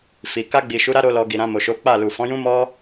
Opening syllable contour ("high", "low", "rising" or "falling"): low